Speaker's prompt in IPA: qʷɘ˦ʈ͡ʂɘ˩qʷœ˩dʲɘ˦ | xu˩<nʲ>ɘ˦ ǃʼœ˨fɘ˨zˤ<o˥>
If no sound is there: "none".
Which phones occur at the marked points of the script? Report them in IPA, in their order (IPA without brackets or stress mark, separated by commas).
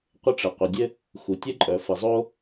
tʲ, o˥